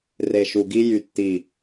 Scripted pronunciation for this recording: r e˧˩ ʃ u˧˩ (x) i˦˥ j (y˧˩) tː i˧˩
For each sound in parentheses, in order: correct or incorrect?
incorrect, correct

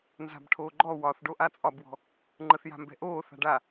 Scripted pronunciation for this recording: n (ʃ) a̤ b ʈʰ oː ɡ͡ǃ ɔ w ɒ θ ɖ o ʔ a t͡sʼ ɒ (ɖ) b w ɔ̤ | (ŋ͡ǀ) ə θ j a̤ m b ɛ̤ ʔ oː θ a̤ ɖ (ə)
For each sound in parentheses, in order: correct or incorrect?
incorrect, incorrect, incorrect, incorrect

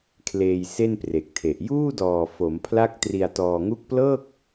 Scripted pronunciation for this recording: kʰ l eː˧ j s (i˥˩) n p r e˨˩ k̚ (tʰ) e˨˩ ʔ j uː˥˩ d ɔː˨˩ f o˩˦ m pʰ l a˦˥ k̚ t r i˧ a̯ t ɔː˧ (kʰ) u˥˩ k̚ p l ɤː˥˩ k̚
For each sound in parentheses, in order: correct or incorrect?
incorrect, correct, incorrect

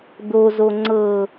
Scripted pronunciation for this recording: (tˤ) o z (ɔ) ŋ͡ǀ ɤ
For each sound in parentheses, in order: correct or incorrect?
incorrect, incorrect

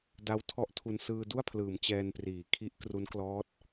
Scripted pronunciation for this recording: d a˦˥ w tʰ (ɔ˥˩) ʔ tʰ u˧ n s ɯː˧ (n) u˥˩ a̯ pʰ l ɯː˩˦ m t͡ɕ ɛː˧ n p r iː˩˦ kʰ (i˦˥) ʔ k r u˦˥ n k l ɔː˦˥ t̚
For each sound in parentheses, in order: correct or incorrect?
incorrect, incorrect, correct

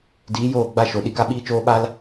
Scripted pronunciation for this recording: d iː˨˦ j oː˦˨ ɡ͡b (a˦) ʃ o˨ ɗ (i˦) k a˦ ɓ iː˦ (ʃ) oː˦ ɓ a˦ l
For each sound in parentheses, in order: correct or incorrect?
incorrect, incorrect, incorrect

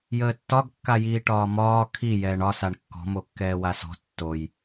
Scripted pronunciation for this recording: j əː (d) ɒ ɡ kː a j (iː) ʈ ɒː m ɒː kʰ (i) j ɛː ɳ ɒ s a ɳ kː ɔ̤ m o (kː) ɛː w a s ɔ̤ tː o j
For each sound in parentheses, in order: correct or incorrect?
incorrect, correct, correct, correct

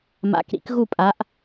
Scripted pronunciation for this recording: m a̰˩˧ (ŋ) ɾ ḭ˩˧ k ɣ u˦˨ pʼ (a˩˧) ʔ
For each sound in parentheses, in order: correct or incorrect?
incorrect, correct

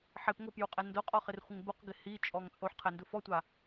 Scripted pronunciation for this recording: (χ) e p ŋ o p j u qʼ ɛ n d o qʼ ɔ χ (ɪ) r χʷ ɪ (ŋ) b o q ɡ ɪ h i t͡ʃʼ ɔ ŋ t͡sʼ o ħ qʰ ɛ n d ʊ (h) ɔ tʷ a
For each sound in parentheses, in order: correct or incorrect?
incorrect, correct, correct, incorrect

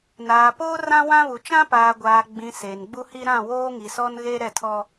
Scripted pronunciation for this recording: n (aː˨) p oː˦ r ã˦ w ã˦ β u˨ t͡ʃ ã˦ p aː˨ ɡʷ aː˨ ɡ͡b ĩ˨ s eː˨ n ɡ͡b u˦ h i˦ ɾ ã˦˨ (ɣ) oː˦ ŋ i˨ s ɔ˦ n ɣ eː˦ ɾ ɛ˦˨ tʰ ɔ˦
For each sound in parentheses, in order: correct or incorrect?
correct, incorrect

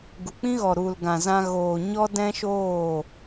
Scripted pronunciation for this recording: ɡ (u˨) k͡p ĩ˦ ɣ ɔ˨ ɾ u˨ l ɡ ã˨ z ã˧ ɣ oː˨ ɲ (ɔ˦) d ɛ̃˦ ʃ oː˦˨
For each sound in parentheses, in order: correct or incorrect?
correct, correct

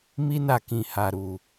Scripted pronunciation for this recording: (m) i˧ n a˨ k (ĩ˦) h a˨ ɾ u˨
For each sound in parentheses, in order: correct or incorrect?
correct, incorrect

